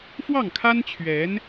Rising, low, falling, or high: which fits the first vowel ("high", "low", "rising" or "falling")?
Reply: falling